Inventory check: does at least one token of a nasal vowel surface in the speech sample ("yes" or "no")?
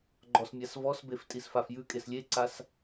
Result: no